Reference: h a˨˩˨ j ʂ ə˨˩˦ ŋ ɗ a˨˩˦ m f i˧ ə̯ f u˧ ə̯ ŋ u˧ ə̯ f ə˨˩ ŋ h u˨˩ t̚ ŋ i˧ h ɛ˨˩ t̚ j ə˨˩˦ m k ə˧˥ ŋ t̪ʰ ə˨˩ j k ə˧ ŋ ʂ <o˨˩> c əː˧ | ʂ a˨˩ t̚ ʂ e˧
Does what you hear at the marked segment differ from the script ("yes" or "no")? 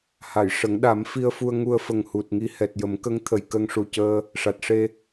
yes